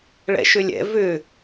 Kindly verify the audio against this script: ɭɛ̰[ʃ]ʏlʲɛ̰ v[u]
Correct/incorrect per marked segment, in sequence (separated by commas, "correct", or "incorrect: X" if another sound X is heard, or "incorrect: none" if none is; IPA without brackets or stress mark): correct, incorrect: ʏ